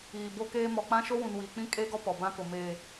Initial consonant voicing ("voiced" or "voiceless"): voiced